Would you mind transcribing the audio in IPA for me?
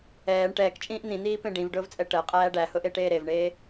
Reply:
ɛː ɳ ʈ ɛː k t͡ʃʼ ĩː ʔ n̪ ĩ n̪ iː p ẽ ɖ ĩ v ɖ ʊː v t͡sʼ ɛ ʈ ɜ qʼ æː ɖ æ h ʊ ʔ e ʈ eː ɾ e v ɳ eː

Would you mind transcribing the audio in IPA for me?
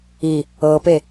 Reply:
i | ɤ p e

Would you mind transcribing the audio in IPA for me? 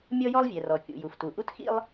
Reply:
mʲ ɔ˥ j ɔ˥ lˠ vʲ ɛ˩ r ɔ˩ kʲ ṵ˩ j u˩ f t u˩ ʔ u˥ t x ḭ˥ lˠ

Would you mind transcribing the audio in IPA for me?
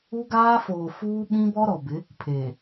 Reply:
u˦ ɡ aː˦ f oː˨ f uː˦ ɓ ĩ˦ b ɔ˦ ɾ ɔ˨ b ɪ˨˦ | pʰ eː˨

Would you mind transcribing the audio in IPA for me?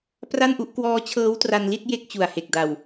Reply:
p r a˥˩ n ʔ u˥˩ ʔ k w ɔː˦˥ t͡ɕʰ ɤː˦˥ w t r a˧ n l i˥˩ t̚ j e˥˩ k̚ t͡ɕ u˨˩ a̯ h e˨˩ k̚ d a˨˩ w

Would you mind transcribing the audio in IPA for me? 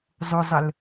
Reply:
zˤ ʊ zˤ ə l

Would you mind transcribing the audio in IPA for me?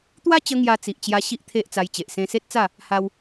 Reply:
t̪ w a˦ t͡ɕ ə˧ ŋ j a˧ t͡s i˨ ʔ t͡ɕ j a˧ ɕ i˦ ʔ t̪ʰ e˦ ʔ t͡s a˧ j t͡ɕ e˨ ʔ s ẽ˧ s e˦ t̚ t͡s a˥˧ | h a˧ w

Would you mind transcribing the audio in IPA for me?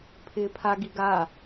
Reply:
pʰ ɪː pʰ a ɡ i ɡ a

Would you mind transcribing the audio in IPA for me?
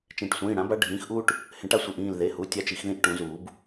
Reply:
t͡ʃ ẽ˨˩˦ ʈ sʷ ĩː˩˧˩ ɽ ã˩˥ b a˦ ɖʱ ĩː˩˥ x ʔ uː˦ ʈ | h ẽ˨˩˦ ʈ a˩˥ sʷ i˩˧˩ ʔ ĩː˧˩ l ð e˩˧˩ h u˩˧˩ tʲ a˦ t͡ʃ i˨˩˦ x ð ĩ˦ ʔ ʈ ũ˨˩˦ z uː˨˩˦ b

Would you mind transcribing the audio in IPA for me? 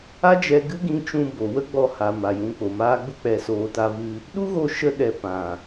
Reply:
a˦ d͡ʒ ɛ˧ ɡ ɨ˦ ɡ ĩ˧ t͡ʃ ũ˧ b o˨ w ə˦ ɡ͡b ɔ˧ h a˨ m a˨ j ũ˨˦ k͡p o˨ m aː˦ ɡ͡b u˧ k͡p ɛ˨ s oː˨ t a˧ v ɨ˧ | ɗ u˦ ɣ o˧ ʃ ə˧ ɗ ɛ˧ p ã˨

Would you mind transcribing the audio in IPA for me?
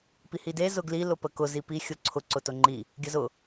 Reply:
p i h i d e z ʊ ɡ l i l ʊ p ə k ʊ z i p i xʲ ʊ ǀʰ ʊ ǀ ʊ t ʊ ŋ͡ǃ i | ɡʲ ə z ʊ

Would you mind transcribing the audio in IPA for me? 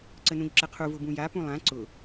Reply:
ǀ ə n ũ ʎ ǁ ə qʰ u v ʊ b ũ j a p ũ lˠ ã ǀ ʊ

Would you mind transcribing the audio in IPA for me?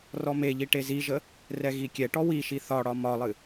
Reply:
r ɔ m e ʎ i ʈ e z i ʒ ə | r ɛ ɣ i kʲ ɛ ʈ ɔ w i ʃ i θ ɒ ɽ ɒ m ɒ lˠ ɨ

